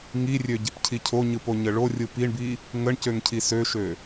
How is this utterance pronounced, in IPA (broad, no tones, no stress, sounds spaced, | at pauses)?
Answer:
ŋ i rʲ ø ɟ e p cʰ i cʰ o ɲ ɯ p o ɲ ə ɭ o rʲ ɯ p i ɳ b i | ŋ ə ɳ c ø ŋ cʰ i s ø ʃ ø